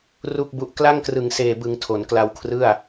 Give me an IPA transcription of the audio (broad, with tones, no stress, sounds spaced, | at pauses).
r u˥˩ k̚ b u˦˥ ʔ k l a˥˩ ŋ k r ɯ˨˩ ŋ s eː˨˩ b ɯ˩˦ ŋ tʰ o˩˦ n k l a˧ w kʰ r ɯ˥˩ a̯